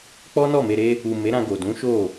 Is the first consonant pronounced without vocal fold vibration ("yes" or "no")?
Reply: yes